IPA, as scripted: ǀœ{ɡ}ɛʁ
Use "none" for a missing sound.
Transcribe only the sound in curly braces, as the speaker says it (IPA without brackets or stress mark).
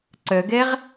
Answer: ɡ